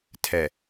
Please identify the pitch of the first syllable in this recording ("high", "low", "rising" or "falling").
low